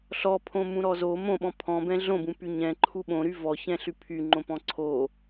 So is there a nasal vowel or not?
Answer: yes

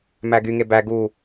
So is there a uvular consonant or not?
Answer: no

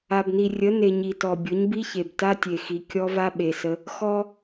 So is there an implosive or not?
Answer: yes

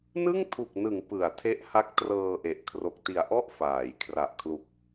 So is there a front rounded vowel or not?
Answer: no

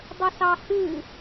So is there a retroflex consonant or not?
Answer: no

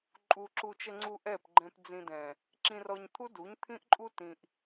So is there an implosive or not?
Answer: no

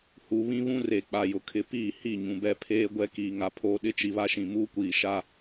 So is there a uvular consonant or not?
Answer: no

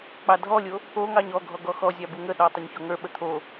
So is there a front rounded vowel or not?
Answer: no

